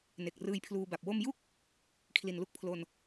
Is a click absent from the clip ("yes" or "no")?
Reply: yes